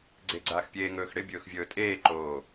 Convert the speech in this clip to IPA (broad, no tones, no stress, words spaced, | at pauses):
ɡ͡ǀeɡ͡ǀaːxpʲeː ŋɵːxɽɪ bʲɵːxvʲɵːtʼeːǃoː